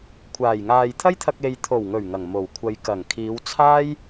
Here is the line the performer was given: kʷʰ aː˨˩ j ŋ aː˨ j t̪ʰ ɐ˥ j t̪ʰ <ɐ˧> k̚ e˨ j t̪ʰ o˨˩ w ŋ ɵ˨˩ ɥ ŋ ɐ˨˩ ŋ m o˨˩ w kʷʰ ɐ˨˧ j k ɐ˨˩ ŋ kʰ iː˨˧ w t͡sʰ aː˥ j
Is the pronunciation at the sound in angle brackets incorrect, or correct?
correct